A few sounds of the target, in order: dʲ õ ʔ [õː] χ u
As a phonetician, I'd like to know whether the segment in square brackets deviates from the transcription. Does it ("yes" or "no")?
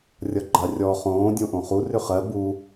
yes